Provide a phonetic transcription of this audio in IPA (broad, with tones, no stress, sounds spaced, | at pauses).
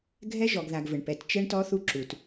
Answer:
ɡʱ ɛ˦ ʒ ɔ˨ ɡ ð a˨ ɡ v ɘ˨ ɳ p ɛ˨ t t͡ʃ ɛ˦ ɳ t ɔ˦ θ u˦ ǁ u˨ t